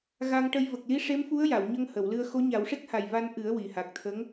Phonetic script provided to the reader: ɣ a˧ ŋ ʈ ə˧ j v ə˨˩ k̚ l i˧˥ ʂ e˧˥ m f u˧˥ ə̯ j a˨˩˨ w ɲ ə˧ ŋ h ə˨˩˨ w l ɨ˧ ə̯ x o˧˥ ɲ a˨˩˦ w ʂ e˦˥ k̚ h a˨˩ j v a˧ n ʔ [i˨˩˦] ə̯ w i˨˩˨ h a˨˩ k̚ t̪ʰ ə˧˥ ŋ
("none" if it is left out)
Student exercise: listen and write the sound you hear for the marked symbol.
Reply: ɨ˨˩˦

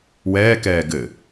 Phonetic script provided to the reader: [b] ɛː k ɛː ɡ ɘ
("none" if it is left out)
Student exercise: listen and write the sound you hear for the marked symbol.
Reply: w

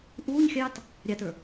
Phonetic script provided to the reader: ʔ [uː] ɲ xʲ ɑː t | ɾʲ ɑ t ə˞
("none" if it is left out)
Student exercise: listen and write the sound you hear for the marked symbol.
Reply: uː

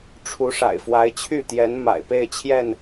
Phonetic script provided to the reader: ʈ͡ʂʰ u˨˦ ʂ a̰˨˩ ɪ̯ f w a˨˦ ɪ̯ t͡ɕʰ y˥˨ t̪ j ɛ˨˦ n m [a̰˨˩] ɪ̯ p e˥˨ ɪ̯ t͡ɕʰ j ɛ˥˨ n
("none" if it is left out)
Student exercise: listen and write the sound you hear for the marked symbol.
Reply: a̰˨˩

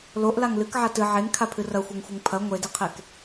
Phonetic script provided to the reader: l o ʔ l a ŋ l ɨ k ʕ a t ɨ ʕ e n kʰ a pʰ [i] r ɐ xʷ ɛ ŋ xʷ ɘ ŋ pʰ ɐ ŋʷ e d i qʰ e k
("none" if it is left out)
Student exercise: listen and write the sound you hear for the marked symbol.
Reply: ɨ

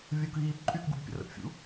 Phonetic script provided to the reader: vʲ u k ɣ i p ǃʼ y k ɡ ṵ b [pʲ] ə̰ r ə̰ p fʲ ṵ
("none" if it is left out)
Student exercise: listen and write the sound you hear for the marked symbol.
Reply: pʲ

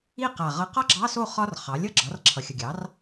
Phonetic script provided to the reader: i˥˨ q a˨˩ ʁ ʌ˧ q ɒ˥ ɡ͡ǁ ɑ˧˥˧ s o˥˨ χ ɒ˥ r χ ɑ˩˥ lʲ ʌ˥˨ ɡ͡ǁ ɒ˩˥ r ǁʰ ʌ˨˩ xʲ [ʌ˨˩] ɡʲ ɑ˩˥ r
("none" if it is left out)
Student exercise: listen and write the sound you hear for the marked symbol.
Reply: ʌ˨˩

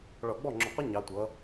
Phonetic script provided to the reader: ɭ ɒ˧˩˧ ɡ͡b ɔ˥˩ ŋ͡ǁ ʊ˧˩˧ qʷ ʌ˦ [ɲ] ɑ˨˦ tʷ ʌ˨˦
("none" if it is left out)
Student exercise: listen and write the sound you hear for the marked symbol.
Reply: ɲ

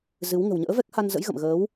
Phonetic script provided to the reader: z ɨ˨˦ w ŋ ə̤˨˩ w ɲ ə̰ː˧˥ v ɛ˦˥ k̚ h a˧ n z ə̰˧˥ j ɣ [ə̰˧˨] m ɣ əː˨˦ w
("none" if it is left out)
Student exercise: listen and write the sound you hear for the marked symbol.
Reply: ə̰˧˨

